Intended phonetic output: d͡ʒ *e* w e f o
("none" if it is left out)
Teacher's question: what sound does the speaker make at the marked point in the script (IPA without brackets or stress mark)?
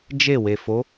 e